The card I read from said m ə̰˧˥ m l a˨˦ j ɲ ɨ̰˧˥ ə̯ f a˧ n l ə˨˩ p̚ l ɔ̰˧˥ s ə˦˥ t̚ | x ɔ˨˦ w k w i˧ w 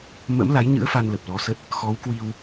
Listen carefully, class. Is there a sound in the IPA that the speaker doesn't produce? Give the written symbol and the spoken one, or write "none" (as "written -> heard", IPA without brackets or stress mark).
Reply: ɔ̰˧˥ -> ɔ˨˦